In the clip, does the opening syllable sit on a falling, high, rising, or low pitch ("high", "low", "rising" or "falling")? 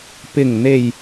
low